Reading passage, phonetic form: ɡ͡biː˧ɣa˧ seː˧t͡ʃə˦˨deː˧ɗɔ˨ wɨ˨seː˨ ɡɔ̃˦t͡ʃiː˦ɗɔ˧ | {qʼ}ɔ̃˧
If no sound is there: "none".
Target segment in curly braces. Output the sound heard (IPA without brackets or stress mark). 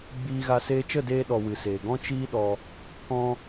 k